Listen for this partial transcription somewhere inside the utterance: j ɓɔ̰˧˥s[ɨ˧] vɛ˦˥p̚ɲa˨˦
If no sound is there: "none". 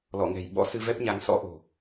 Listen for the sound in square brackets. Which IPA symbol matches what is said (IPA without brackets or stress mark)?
ɨ˧